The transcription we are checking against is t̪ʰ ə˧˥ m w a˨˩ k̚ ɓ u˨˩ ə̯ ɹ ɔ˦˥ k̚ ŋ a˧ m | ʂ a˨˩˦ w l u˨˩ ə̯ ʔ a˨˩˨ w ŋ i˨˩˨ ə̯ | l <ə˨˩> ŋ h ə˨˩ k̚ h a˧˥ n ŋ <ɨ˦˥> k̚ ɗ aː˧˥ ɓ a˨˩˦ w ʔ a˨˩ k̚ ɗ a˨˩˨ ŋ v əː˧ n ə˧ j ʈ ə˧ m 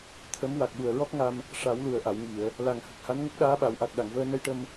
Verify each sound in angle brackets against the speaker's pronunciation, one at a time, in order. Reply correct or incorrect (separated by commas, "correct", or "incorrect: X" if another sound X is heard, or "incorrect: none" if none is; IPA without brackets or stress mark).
incorrect: a˨˩, incorrect: ə˦˥